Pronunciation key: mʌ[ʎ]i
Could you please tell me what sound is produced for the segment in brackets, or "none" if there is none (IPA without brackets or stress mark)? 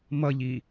ʎ